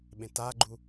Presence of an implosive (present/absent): present